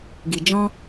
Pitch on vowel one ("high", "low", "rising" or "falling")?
low